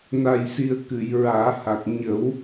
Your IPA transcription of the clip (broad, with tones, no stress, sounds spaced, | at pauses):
n a˨˩ j s i˨˩ ə̯ k ɨ˨˩˨ j ɹ aː˨˩˦ h a˨˩ k̚ ɲ ə˨˩˦ w